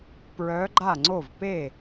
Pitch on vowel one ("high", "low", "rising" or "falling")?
rising